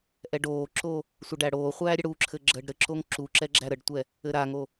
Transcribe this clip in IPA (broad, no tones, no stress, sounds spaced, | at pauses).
ʔ ɛ ɖ oː ǁ o | sʷ ə ɖ æ ɽ oː χʷ æː ɾʲ ə ɽ u ǁʰ ɘ ɡ͡ǁ əː ɖ ɾ ɘ ǁ o ŋ ǁ u ǁ ɛ ɡ͡ǁ æ ɾ ə ɖ tʷ ɛ | ɘ ɾ a ŋ o